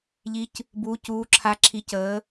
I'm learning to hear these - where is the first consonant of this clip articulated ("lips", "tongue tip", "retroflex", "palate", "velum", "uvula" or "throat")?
palate